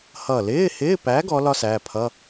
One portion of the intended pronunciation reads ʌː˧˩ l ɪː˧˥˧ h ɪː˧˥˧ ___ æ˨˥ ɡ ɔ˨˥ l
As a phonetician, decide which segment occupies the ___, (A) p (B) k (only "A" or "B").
A